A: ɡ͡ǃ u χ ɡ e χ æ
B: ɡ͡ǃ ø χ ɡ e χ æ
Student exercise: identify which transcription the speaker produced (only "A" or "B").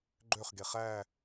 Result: B